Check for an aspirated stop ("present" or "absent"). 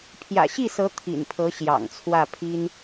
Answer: present